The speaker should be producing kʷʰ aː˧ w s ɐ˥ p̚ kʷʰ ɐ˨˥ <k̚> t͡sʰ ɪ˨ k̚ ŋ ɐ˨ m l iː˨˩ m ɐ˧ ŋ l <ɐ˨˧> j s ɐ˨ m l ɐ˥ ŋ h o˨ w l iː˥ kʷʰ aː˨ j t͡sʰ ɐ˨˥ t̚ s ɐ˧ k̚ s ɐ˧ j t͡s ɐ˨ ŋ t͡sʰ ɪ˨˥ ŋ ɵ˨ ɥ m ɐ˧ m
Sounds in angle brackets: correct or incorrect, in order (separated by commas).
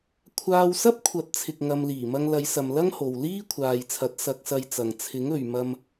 incorrect, correct